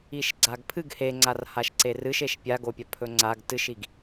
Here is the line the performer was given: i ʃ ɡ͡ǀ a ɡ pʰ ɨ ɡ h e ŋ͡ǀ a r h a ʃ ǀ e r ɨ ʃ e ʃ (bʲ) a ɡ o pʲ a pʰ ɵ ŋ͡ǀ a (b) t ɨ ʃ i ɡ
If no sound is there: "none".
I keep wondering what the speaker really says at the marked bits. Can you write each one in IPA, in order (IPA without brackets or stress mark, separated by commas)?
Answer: pʲ, ɡ